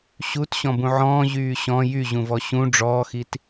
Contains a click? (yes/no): no